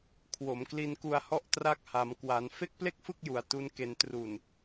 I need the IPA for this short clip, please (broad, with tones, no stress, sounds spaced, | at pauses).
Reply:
kʰ w o˩˦ m k l i˧ n k u˧ a̯ h ɔ˥˩ ʔ t r a˦˥ k̚ h a˩˦ m k w a˩˦ n f e˥˩ k̚ p l e˥˩ k̚ f ɯ˥˩ k̚ j u˨˩ a̯ t u˦˥ n k e˧ n t r u˨˩ n